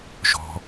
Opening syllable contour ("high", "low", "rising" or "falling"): low